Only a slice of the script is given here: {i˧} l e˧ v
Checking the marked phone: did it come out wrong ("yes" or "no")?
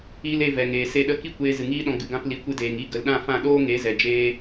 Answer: no